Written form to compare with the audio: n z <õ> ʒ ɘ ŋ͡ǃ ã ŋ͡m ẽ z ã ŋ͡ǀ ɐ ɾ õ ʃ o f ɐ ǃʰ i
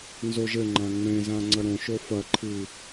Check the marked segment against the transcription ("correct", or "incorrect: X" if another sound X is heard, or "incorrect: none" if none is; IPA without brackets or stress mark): incorrect: o